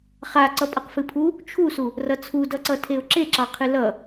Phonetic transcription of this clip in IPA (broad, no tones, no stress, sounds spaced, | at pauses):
χ a ǀ ʌ pʼ ʌ q f ɨ pʰ u | t͡ʃʰ u s u | r ʌ t͡sʰ u d ʌ ǀ ʌ tʰ e ʊ̯ ǁ e ǁ ɑ qʰ ɨ l ʌ